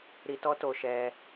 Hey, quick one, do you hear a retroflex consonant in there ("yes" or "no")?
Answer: no